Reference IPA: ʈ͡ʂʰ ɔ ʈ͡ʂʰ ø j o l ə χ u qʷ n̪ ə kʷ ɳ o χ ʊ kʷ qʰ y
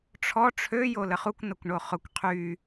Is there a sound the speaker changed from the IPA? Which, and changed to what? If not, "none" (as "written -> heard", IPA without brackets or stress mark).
qʷ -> kʷ